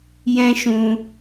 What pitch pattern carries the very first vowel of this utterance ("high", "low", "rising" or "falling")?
high